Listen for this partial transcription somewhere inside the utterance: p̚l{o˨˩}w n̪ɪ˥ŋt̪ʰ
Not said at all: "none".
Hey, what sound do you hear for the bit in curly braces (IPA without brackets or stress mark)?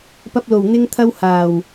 o˨˩